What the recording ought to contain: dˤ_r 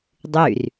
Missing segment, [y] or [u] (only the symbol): y